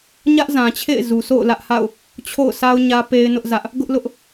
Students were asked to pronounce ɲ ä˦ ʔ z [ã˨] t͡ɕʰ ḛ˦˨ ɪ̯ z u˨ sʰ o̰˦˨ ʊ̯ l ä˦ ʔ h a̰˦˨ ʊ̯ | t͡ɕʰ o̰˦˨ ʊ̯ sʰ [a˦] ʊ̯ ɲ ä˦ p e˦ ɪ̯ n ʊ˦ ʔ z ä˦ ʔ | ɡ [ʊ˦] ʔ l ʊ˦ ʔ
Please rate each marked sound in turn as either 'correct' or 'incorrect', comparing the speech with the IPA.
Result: correct, correct, correct

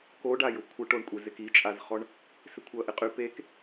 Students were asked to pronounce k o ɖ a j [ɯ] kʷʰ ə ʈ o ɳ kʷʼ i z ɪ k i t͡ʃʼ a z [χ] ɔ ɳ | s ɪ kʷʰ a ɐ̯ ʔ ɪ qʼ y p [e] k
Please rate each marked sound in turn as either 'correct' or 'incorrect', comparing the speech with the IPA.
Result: incorrect: ʊ, correct, correct

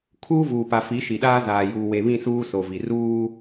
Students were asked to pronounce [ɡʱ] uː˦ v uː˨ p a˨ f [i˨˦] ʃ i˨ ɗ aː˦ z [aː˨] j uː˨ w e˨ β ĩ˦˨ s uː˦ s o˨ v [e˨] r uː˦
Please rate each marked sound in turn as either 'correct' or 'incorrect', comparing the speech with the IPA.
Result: incorrect: kʰ, correct, correct, incorrect: i˨

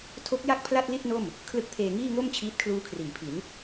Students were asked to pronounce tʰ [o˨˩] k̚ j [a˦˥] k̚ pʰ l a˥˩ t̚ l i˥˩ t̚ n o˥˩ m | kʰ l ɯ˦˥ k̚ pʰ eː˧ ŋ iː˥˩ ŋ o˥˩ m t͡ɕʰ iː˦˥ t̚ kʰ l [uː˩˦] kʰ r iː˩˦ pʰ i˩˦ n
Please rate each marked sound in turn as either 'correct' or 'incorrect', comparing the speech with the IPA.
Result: incorrect: o˦˥, incorrect: a˥˩, incorrect: uː˦˥

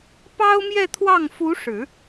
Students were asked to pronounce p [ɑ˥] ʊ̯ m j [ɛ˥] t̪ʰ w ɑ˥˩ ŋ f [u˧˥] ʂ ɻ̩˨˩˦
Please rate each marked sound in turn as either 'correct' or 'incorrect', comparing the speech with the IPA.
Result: correct, incorrect: ɛ˥˧, correct

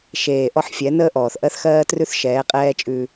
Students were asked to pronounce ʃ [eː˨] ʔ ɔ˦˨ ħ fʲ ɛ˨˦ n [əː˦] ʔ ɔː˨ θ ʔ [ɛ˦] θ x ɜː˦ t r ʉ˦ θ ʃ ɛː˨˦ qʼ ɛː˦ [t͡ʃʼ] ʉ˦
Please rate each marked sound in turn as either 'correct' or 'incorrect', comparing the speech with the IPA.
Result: correct, correct, incorrect: ɜ˦, correct

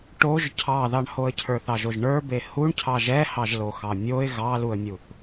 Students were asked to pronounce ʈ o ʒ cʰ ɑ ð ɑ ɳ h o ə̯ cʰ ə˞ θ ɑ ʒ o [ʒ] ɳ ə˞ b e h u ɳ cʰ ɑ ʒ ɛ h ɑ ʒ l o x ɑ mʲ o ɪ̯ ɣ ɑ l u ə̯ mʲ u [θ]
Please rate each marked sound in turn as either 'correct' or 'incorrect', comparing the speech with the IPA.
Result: correct, correct

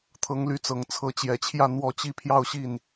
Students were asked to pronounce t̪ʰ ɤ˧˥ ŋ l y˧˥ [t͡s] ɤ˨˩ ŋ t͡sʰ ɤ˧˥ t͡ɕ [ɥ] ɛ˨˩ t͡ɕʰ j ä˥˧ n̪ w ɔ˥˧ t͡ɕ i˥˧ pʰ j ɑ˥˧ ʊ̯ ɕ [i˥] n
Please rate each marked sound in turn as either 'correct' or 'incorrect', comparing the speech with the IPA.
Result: correct, incorrect: j, incorrect: i˥˩

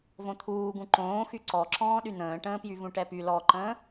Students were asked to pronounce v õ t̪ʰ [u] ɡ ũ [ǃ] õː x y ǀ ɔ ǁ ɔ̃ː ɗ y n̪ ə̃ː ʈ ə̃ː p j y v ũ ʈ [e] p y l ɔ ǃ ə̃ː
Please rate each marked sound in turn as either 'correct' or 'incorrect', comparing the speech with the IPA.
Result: incorrect: uː, correct, incorrect: ɛ

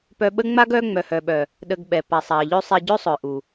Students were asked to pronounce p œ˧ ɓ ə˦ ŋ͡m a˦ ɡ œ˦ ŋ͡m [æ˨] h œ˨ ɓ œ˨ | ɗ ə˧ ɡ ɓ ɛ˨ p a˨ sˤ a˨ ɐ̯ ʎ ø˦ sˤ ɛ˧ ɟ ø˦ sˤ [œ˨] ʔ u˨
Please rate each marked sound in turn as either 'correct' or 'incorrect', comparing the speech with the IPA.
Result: incorrect: œ˨, correct

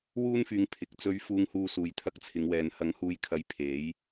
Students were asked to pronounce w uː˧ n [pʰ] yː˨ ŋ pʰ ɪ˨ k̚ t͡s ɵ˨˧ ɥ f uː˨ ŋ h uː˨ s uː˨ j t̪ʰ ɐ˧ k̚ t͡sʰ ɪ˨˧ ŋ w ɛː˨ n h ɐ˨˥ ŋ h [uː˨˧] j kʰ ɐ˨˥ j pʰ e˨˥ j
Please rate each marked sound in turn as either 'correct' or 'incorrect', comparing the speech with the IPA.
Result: incorrect: f, correct

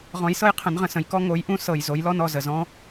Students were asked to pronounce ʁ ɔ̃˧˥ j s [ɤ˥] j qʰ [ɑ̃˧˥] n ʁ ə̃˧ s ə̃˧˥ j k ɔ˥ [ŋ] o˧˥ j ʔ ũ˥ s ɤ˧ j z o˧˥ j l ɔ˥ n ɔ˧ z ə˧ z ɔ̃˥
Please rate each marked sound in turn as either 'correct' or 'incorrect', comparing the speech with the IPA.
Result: correct, incorrect: ə̃˧˥, correct

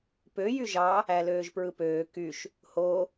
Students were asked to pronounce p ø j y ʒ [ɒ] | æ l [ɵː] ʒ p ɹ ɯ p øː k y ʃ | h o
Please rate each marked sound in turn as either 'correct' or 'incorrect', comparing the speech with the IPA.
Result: incorrect: ɑ, incorrect: øː

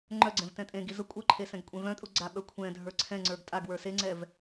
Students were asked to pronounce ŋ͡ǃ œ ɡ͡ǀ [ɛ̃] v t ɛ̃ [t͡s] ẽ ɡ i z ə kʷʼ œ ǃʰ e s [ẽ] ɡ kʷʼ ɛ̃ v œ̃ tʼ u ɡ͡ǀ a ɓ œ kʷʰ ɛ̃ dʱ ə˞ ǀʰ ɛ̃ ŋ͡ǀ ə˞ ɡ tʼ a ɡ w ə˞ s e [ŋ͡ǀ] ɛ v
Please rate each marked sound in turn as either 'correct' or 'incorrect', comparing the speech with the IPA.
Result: correct, incorrect: tʼ, incorrect: ɛ̃, correct

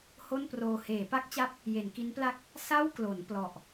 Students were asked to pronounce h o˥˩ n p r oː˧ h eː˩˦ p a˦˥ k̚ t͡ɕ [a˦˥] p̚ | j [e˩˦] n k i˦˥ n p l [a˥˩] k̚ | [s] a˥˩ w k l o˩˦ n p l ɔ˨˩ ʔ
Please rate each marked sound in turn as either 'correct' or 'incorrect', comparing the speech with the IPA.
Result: correct, correct, correct, correct

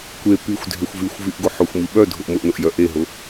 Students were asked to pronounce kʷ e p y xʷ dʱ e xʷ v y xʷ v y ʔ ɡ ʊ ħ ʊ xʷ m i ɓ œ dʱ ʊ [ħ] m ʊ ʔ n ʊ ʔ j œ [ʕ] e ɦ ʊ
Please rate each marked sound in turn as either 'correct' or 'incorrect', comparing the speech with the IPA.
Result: incorrect: ʔ, incorrect: ʔ

